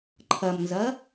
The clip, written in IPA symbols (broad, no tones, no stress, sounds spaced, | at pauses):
ǃʰ ɐ m n z ɐ